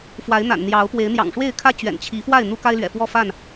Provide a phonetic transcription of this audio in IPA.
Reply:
f w a˨˦ ɪ̯ n̪ a̰˨˩ n n̪ j ɑ˨˦ ʊ̯ p w e˨˦ ɪ̯ n̪ j ɑ̰˨˩ ŋ ʂ w e˥˨ ɪ̯ kʰ ä˦ t͡ɕ ɥ ɛ̰˨˩ n t͡ɕʰ i˨˦ f w a˥˨ ɪ̯ n̪ u˦ k a˦ ɪ̯ l ɥ ɛ̰˨˩ f w ɔ˥˨ f a˥˨ n

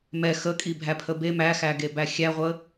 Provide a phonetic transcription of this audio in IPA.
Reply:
m ɛ x ə kʼ i bʱ æ pʰ ə b e m æ x æ ɡ e b æ xʲ æ ʁʷ ə

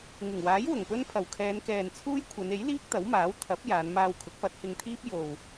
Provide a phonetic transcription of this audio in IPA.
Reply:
ŋ ɪ˨˩ ŋ w aː˨˥ j w ʊ˨˩ ŋ p ɵ˥ n pʰ ɐ˨˩ w kʰ ɛː˨˧ n k ɛː˨ n t͡sʰ uː˥ j kʷʰ ɐ˨˧ n e˨˥ j l iː˥ k̚ t̪ ɐ˨˥ w m aː˨˥ w t̪ʰ ɐ˨˥ p̚ j aː˨˧ n m aː˧ w kʰ ʊ˨˥ k̚ p ɐ˨˥ t̚ h ɪ˧ ŋ t̪ʰ iː˥ p̚ j o˨ w

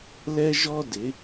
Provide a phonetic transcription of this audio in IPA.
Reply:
l ɛ˧ ʒ ɔ˧ d ɪ˩˧

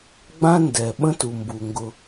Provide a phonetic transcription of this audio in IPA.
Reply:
ɡ͡b ã˥ n d ɛ˩ ɓ ə̃˥ t u˩ m b u˩ ŋ ɡ ʊ˨

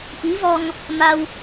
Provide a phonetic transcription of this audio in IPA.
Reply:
ʔ i˧˥ v ɔ˧ ŋ | m a˧ w

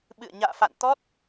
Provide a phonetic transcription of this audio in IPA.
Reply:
ɓ ɨ̰˧˨ ə̯ ɲ a̰ː˧˨ f a̰˧˨ n t̪ ɔ˦˥ t̚

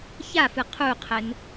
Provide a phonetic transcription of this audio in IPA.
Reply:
ç a f ɨ qʰ u qʰ ɘ n

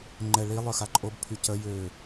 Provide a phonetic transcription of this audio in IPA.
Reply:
ŋ͡ǃ ɛ ɭ i lˠ œ x a ǃʼ o b pʰ y c ə j ø

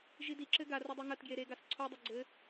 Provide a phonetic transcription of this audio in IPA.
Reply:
ʒ i d i ǁ ɘ ɡ a r ɐ dˤ e ŋ ɐ t ɡ j e ɾ e ɡ a s ǀʰ o dˤ ɐ ɡ͡ǀ ɘ

